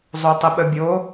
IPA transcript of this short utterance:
zˤotˤəɓəbʲo

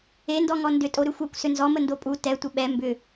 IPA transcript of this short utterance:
endɔŋɔ ndʏtʼo ɾʏxʷɛkʷ sʏnzɔmə ndopʼu tɛ tʷəɓɛ mbʏ

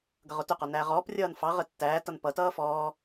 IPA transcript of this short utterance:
ɡʌʁʊtʊqɔ næʁɔːprʲʌːn fɑʁə tːæːtʌn pʌtʌː fɔː

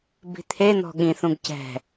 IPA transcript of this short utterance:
bi̤t̪ʰen̪ɔ̤ ɠĩθũɡ cɛ̤

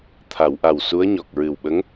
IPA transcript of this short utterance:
t̪ʰa˨˩˨wʔa˨˩w su˧˥ə̯ɲɔ˨˩k̚ ɹɨ˨˩wɓə˧˥ŋ

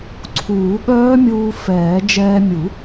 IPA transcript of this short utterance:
ǀʰuː˨˩˦ɠœː˦˥ mʲuː˧ fɛː˨˩˦ d͡ʒɛː˧mʲu˨˩˦

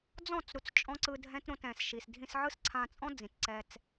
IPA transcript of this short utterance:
d͡zɔ̃˦˨t͡sɾu˨t͡s t͡ʃʼɔ̃˦ǀɯ˧dʱɛ̃˦t ɾõ˧tɛ̃˨sʃi˨s dʱĩ˧sʕɯ˦sǀʰã˧t͡sʼɔ̃˦ d͡zĩ˨tǀɛ˧t͡s

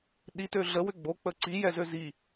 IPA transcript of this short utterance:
ɗitø ɮəwʏ ɡ͡bok͡pə ǀijɛzø zi

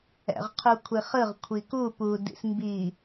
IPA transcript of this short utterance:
ɛ̰ʁqʰukʷʰiχɯʁ kʷʰiku pudḭs mbi

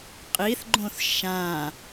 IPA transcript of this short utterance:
qʼiθɡ͡ǃõθ ʃã

